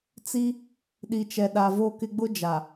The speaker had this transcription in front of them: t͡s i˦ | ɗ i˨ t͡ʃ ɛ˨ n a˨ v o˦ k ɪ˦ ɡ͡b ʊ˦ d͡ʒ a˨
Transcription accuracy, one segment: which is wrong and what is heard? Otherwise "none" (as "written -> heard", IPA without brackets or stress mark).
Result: n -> ɗ